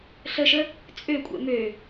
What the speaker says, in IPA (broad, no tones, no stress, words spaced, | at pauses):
ɬəʃə | t͡sʼøkʷʼɛ̰ mø